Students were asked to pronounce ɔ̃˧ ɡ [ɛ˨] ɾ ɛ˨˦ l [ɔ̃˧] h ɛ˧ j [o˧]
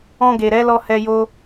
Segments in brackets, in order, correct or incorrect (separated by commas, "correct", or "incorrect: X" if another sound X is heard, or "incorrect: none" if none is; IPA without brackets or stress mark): incorrect: e˨, incorrect: ɔ˧, incorrect: o˦